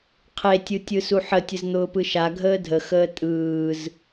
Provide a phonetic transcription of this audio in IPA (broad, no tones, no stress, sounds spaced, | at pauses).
qʰ e tʲ ɯ tʲ ɯ s u ħ ə tʲ ə z n̪ ʊː p ɯ ʃ a ɡʱ əː dʱ ə x əː tʼ ɯː z